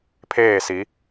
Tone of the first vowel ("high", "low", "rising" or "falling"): falling